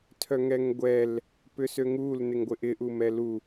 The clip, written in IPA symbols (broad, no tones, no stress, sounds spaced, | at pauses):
tʰ œ ŋ ɛ ŋ ɡʷ ɛ l | p ʏ s ø ŋ u l n ɪ ŋ ɡʷ ɪ ʔ ɪ ʔ u m ɛ l u